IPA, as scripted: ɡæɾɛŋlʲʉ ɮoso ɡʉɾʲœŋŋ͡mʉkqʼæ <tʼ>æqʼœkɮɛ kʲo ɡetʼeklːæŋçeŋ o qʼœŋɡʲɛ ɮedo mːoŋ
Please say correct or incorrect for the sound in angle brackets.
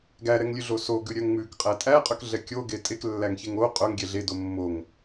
correct